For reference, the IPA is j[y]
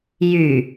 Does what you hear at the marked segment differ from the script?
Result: no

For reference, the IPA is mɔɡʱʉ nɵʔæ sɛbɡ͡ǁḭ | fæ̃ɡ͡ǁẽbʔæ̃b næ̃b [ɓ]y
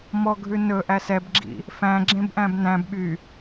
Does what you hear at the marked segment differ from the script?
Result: no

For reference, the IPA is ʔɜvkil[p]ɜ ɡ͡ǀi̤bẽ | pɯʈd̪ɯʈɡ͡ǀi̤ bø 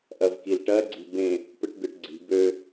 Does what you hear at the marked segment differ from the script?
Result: yes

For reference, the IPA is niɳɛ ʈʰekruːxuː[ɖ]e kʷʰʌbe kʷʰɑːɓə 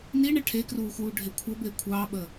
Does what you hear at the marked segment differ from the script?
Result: yes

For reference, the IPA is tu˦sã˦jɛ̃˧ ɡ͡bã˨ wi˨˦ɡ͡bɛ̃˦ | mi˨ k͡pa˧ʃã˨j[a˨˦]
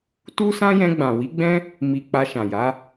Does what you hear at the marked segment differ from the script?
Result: no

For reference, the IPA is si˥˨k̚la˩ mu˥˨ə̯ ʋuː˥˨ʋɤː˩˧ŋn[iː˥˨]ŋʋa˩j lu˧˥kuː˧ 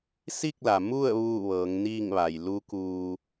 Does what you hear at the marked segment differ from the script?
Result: no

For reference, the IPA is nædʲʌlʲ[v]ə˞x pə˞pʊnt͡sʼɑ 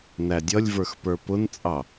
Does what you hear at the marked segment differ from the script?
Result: no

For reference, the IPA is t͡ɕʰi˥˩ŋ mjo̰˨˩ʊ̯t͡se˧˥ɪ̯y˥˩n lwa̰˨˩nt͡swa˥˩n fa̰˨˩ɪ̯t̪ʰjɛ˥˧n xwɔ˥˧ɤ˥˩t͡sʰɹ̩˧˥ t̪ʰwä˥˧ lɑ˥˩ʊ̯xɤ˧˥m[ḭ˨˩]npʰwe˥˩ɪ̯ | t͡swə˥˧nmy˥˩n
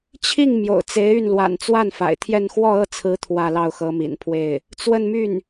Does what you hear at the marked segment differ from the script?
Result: no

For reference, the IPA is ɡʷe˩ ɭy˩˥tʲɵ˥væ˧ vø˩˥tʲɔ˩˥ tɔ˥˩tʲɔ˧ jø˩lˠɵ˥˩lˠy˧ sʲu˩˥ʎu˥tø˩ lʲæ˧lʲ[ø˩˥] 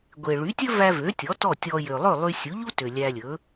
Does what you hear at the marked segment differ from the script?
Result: yes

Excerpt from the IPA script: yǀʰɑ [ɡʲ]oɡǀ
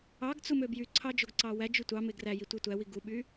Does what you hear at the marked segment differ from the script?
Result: yes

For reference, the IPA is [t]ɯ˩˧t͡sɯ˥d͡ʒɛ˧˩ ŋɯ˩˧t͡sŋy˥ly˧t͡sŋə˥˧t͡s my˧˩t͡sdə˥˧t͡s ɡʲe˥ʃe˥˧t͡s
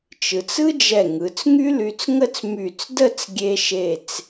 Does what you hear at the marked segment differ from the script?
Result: yes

